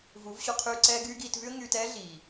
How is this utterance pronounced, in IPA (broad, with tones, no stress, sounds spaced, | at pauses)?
v u˨˦ v ɕ o˧ qʰ yː˧ ǀ ɛː˦ ɡ yː˦ ɡ iː˧ t v y˦ ə̯ ŋ yː˧ t ɛː˦ ɮ iː˨